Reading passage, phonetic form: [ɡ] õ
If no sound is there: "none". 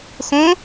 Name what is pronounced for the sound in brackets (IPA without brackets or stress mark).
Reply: x